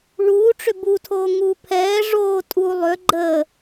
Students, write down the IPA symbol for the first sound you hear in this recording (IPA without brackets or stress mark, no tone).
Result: ɭ